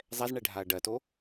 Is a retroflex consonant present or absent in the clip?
present